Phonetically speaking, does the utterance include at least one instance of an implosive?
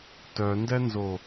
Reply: no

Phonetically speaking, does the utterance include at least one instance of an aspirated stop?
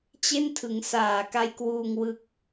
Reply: yes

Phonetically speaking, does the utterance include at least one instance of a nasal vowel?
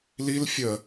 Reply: no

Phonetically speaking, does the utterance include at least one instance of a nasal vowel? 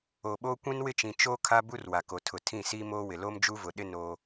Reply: yes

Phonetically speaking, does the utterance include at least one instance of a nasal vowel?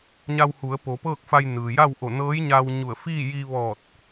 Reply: no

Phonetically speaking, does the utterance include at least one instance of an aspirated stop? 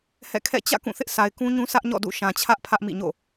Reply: yes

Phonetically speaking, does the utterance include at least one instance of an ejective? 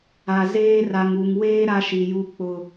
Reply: no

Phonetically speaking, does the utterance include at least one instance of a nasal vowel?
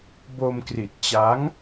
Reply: no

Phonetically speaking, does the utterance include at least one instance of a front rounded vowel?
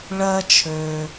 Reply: yes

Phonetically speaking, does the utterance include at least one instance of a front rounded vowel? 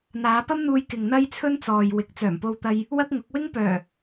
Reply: yes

